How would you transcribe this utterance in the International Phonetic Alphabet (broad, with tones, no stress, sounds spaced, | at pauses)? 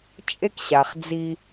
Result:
t͡ʃʼ e˥ k ɕ a˩ χ d͡z i˧